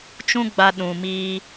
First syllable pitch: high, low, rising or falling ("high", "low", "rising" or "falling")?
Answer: high